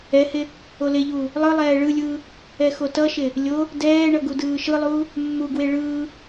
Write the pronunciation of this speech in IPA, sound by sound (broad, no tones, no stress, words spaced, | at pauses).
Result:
ɛhe | oleʎuː | lˠɯ lˠɛːɭɯlʲɯː | ɛxotʌʃe | lʲo | dɛːɳʌ ɡudɯːʃɯlˠuː | mːuɡwe ɭɯː